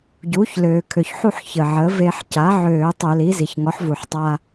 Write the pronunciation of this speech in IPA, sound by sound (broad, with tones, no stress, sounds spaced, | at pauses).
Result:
ɟ uː˩˥ ç l øː˩ kʰ ø˩ ç ħ u˥˧ ħ ç əː˩ ʕ əː˩˥ v e˧ ħ c a˩˥ ʕ øː˧˩˧ tˤ ø˧˩˧ l i˩˥ z i˩ ç ŋ ɔ˩˥ ħ v u˩ ħ tˤ aː˧